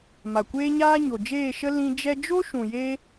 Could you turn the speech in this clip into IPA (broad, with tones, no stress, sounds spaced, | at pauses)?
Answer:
m a˨ kʷ eː˦ ɲ aː˦ ɲ o˨ d͡ʒ eː˦˨ ʃ ə˦ l ĩ˧ d͡ʒ ɛ˧ d͡ʒ o˦ ʃ ũ˨ j e˧